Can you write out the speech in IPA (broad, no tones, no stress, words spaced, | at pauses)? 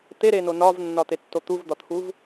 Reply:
t̪eɾeno nɒvnːɒt̪etːo t̪uvd̪ɒt̪ʰuv